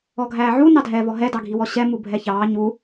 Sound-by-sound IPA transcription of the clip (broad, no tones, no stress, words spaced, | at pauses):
ɔɡʱæːʕu nɑdʱɛːvɔɦɛ dɑɡʱiwɔɕɛ mubʱɛçɑː ɲu